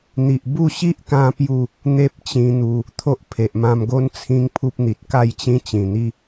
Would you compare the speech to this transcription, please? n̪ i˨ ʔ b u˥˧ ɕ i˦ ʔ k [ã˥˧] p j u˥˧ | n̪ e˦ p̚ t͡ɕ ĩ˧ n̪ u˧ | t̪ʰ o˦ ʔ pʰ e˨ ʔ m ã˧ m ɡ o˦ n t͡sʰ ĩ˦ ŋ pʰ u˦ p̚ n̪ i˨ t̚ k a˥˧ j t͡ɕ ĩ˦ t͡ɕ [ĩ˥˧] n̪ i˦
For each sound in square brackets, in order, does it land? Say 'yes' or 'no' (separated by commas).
no, no